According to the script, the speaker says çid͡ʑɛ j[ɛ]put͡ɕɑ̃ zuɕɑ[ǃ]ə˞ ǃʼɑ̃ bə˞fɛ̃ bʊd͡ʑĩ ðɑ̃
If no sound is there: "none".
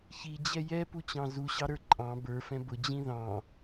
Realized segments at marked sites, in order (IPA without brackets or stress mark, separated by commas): ɛ, ɾ